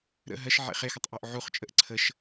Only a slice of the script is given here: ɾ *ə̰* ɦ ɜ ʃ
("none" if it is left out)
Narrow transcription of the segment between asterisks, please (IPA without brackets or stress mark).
ə̰